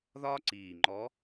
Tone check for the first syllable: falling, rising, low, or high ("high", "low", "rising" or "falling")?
high